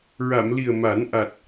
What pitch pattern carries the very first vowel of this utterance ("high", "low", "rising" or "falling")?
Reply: low